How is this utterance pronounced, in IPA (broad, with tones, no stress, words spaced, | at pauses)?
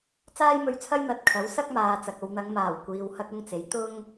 t͡saː˥jmɵ˧ɥt͡sʰɐ˥j n̪ɐ˨˥t̚kʰɐ˨˥w sɐ˥k̚maː˨ t͡sɐ˨k̚o˧w n̪ɐ˨˧ŋmaː˨˩w kʷiː˧whɐ˥k̚ʊ˥ŋt͡se˨˥j t̪ʊ˥ŋ